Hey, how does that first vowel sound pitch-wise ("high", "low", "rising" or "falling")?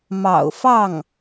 low